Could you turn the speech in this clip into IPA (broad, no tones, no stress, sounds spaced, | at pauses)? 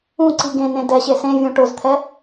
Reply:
ũ ǀ i ɡ ẽ n ẽ d ɛ ɕ e s ẽ vʲ ũ ʈ ʊ z t̪ʰ ɛ